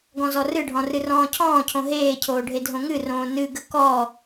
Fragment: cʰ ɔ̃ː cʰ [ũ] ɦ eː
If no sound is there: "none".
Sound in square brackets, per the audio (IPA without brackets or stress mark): õ